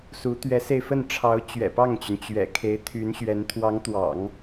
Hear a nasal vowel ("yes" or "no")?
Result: no